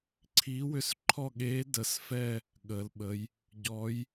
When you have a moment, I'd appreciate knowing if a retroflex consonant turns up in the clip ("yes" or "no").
no